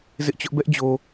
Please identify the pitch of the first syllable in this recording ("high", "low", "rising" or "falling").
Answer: high